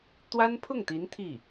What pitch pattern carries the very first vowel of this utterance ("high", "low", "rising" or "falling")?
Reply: high